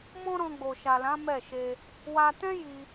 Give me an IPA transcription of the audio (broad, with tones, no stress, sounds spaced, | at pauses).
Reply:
m ɔ̃˦ ɾ ɔ̃˧ ɡ͡b o˨ ʃ a˨ l ã˨˦ m ɛ˦˨ ʃ e˧ | w a˧ t ɛ̃˦ j i˧